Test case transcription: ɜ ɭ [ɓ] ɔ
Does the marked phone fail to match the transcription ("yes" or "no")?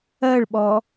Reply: no